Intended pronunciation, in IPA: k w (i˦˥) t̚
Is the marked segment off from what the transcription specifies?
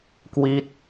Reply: no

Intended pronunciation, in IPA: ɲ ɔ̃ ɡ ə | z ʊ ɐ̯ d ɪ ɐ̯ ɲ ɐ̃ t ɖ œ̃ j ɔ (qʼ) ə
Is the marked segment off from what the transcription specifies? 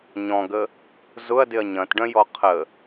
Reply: yes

